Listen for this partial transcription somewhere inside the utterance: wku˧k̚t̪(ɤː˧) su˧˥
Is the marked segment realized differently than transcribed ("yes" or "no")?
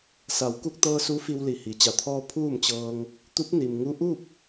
no